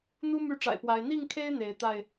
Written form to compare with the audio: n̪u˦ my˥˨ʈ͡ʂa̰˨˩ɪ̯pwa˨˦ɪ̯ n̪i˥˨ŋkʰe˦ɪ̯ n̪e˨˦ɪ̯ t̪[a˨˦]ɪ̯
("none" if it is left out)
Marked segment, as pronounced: a˥˨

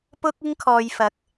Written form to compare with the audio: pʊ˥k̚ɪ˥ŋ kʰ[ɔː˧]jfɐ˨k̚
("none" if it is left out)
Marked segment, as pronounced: ɔː˧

